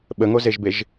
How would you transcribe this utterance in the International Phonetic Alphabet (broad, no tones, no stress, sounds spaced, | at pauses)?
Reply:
ɓ ə ŋ o z e ʒ b e ʒ